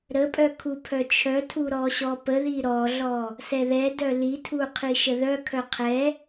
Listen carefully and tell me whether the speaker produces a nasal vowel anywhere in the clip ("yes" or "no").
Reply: no